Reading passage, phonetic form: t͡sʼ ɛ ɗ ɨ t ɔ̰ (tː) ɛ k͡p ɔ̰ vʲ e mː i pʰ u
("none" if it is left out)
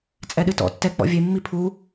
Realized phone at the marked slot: tː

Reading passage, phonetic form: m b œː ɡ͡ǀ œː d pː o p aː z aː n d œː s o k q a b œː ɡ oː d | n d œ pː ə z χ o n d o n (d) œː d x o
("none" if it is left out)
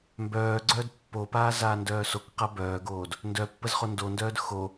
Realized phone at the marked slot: d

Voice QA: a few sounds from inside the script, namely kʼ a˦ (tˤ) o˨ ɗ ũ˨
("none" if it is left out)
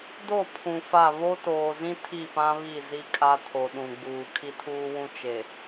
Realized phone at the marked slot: tʰ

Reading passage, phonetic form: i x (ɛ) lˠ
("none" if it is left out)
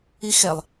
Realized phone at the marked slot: ɛ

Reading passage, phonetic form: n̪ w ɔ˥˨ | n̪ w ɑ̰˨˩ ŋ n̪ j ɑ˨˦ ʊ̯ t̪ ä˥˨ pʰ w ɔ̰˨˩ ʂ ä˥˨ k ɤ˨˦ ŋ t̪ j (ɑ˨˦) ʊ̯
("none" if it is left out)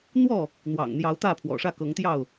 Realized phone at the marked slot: ɑ˥˨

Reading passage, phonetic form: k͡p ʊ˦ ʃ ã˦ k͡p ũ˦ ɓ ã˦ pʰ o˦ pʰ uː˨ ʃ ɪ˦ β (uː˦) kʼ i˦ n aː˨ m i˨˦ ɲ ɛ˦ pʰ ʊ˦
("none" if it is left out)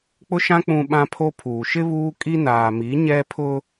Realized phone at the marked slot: uː˦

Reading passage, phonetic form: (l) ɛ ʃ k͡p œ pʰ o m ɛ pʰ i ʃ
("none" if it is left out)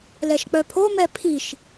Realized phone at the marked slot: l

